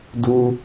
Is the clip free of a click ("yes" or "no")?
yes